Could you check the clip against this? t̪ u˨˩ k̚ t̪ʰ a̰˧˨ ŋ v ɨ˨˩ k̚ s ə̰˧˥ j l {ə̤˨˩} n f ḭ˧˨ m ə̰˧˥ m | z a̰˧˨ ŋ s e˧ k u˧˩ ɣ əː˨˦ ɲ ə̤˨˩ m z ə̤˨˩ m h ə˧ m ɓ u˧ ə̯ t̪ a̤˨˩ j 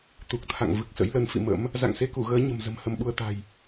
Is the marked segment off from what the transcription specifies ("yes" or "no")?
yes